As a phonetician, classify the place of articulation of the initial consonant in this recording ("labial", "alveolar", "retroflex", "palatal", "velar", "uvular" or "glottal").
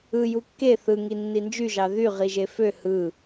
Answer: palatal